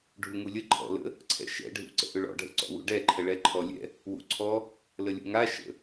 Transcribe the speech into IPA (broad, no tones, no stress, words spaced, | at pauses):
ɖʱuŋulʲə ǃʰɔ̰lə̰ | ǀʰɛ̰ʃɛ̰ɖʱṵǀə̰ ʔʏɭɔ̰ɖʱə̰ ǀɔ̰wṵɖɛǃʰə ɭɛǃʰɔlʲɛ̰ | wṵǀʰɔ | ləlʲṵŋa ʃə̰